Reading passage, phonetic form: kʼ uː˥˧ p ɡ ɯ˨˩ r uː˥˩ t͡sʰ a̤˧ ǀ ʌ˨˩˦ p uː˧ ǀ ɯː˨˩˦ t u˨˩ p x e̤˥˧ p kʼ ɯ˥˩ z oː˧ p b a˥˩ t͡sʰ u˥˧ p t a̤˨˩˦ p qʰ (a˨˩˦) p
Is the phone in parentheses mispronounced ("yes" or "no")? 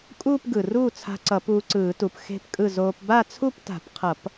yes